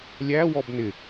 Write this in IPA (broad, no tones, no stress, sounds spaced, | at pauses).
lʲ æ w ɔ b n ɪ